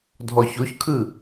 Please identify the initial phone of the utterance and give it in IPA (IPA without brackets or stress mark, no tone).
dʱ